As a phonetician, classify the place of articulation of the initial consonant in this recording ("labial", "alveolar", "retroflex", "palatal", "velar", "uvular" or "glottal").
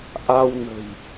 glottal